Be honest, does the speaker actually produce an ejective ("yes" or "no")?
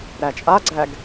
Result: yes